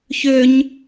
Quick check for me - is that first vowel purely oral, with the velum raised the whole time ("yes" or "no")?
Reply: yes